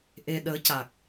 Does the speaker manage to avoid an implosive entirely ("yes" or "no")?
no